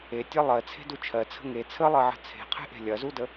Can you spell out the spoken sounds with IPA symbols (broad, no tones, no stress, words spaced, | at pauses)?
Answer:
etʲɜ lˠɜt͡sʰe̤du t͡ʃʰɜt͡sʰə̤ ŋe t͡sʰəlˠɜʕə̤ t͡sʰe̤qʰe̤ʔe̤ lʲɐzudə